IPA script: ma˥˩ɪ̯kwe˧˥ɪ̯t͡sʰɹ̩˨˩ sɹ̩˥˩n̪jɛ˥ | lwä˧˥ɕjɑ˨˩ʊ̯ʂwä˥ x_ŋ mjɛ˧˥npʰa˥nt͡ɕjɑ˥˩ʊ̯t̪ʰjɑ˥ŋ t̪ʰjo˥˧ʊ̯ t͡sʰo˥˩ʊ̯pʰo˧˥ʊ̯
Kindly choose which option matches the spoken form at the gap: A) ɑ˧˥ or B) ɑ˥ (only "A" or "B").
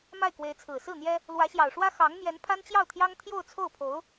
A